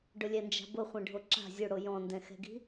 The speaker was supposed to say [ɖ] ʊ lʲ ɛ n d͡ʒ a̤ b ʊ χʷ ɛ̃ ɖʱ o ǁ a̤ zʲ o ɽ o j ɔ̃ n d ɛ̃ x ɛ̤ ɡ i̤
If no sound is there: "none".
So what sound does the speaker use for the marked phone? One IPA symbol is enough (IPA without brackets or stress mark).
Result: ɖ